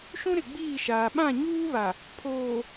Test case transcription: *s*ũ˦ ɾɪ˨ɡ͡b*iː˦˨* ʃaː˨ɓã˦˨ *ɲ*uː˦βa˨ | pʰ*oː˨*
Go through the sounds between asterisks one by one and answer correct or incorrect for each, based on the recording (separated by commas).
incorrect, correct, correct, correct